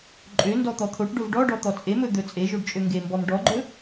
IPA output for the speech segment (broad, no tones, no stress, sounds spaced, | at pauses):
ǃʼ ø n d ɔ t̪ ɔ t̪ʰ o ʈ ɖ o v ɖ ɔ ɖ ɔ t̪ ɔ t͡sʼ e m ɵ d̪ ɵ t͡sʼ e ʒ o ɖ t͡ʃʼ ø ŋ ɡ e m b ɔ m ɖ ɔ ɡ͡ǃ ɵ